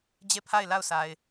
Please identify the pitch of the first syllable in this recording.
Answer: falling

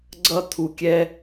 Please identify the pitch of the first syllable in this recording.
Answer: high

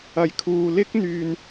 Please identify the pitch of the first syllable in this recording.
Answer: low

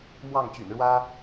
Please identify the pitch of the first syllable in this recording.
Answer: falling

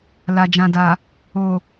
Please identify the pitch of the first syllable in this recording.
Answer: low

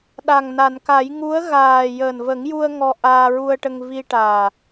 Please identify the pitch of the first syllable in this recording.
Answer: low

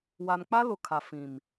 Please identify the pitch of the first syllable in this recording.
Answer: low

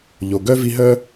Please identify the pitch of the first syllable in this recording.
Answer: low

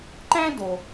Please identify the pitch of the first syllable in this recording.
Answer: high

